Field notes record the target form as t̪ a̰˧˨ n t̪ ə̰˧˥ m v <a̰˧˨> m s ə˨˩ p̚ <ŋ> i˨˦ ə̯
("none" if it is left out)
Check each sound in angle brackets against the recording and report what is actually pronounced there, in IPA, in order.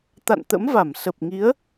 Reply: a˧˩, ŋ

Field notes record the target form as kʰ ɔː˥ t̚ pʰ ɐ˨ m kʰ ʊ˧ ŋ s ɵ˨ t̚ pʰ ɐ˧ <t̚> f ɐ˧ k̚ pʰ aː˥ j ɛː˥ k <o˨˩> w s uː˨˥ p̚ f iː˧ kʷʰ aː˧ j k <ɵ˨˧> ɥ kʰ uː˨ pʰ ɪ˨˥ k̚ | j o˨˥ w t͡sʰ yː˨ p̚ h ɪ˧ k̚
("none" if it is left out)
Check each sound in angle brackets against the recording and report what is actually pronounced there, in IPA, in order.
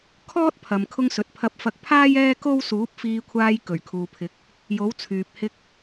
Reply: p̚, o˥, ɵ˨˩

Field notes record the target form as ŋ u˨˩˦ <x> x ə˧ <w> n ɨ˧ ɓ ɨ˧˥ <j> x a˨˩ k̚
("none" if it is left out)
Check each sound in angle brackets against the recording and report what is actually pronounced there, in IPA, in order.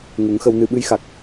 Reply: ŋ, w, j

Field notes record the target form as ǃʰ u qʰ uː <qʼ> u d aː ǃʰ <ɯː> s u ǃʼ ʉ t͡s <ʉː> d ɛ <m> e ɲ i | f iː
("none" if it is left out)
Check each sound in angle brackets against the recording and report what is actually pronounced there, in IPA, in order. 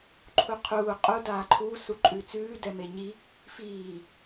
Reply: qʼ, uː, ʉː, m

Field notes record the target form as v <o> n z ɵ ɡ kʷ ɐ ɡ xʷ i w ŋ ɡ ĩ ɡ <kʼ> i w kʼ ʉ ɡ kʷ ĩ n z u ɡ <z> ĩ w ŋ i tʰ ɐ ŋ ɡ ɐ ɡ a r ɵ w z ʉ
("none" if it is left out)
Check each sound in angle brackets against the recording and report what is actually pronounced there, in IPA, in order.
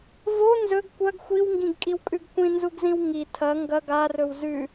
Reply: o, kʼ, z

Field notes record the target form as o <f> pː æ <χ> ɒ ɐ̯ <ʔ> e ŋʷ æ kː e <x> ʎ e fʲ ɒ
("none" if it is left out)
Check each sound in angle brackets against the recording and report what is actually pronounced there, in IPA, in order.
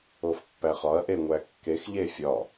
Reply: f, χ, ʔ, x

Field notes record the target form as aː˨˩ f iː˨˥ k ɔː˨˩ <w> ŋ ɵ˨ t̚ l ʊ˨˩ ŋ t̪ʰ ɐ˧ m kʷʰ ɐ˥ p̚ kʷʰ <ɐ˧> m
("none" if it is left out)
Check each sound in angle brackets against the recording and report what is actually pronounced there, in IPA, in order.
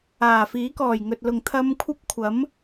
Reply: j, ɐ˨˥

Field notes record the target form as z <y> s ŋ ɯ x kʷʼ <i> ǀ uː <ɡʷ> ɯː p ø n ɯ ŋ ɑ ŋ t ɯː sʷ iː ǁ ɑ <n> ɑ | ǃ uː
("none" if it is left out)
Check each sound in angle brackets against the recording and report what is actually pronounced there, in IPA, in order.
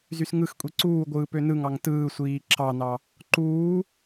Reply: y, i, ɡʷ, n

